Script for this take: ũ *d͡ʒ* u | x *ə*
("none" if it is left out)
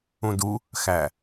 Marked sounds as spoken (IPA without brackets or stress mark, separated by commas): d, æ